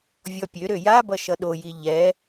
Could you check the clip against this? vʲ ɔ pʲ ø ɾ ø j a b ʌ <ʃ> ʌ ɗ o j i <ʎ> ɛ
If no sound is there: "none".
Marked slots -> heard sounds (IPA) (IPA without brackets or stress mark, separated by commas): ʃ, ʎ